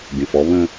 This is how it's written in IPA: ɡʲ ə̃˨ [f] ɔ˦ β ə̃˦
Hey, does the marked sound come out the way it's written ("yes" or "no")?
yes